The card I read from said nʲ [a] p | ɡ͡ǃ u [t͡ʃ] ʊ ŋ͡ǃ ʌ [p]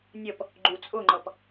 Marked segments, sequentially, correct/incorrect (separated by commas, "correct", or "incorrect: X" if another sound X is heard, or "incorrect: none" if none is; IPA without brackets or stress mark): incorrect: ʌ, incorrect: t͡sʼ, correct